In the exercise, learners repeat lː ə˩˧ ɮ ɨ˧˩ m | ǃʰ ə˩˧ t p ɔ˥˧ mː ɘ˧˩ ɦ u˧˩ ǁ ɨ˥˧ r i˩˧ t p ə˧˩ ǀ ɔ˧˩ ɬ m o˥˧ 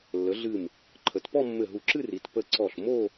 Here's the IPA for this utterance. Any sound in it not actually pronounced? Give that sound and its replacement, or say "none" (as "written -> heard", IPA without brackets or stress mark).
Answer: none